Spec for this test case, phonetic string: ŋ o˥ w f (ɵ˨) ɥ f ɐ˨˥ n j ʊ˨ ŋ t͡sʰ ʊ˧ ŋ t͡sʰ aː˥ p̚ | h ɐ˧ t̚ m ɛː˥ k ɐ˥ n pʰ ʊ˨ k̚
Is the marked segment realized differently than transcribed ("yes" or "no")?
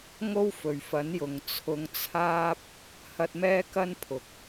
no